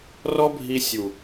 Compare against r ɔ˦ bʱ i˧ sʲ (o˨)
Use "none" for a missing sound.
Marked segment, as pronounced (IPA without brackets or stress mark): u˨